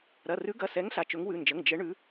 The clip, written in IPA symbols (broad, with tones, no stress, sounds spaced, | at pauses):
ɾ ɐ˩˧˩ r ʉ˨˦ ɡ ɐ˩˧˩ s ɛ˨˦ ŋ ɬ a˩˧˩ t͡ʃ ɵ˨˦ ŋ w ʉ˩˧˩ n d͡ʒ ə˩˧˩ ŋ d͡ʒ ə˨˦ ɳ ʉ˨˦